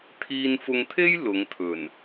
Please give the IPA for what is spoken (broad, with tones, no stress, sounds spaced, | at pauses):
t̪ʰ iː˧ n f ʊ˧ ŋ t̪ʰ e˥ j l ʊ˨˧ ŋ t̪ʰ ɵ˨˩ n